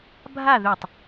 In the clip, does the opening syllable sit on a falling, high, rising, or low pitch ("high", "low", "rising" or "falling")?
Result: falling